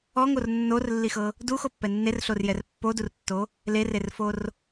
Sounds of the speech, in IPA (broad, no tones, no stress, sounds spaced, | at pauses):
ɔ ŋ o r nː o r lː i x ɤ | d u x o pː ɛ nː e r ɬ o r j ɛ r pː o d u r tː o | l e r e r f o r